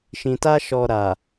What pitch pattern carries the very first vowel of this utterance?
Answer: low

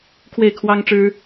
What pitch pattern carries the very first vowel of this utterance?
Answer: falling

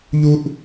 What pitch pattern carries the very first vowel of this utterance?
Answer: high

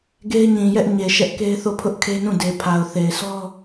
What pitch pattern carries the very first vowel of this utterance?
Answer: high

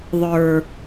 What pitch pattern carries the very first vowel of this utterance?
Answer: low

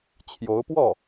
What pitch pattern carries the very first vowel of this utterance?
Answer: rising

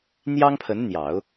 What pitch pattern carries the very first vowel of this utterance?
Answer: high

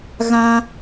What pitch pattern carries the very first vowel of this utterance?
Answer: high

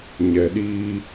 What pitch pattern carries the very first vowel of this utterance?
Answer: low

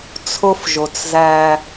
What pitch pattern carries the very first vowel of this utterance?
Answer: high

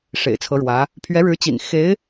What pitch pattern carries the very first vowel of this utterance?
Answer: low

